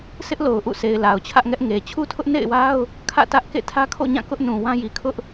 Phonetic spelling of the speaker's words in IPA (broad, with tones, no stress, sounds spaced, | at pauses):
sʰ ɪ˦ ʔ l o˨ ʊ̯ ʔ ṵ˦˨ sʰ e˨ ɪ̯ l a˨ ʊ̯ t͡ɕʰ ä˦ ʔ ŋ ɛ˦ ʔ ŋ e˨ t͡ɕʰ u˦ tʰ ʊ˦ ʔ n ḛ˦˨ ɪ̯ w a˦ ʊ̯ | kʰ ä̰˦˨ t ä˦ ʔ k ḛ˦˨ tʰ ä˦ kʰ o̰˦˨ ɲ ã˦˨ k ʊ˦ ʔ n ũ˨ w ã˦ j i˨ kʰ ʊ˦ ʔ